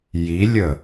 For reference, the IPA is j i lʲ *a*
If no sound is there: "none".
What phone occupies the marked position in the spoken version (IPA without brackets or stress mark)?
ə